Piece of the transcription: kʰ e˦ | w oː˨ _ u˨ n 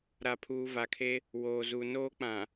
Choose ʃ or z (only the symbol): z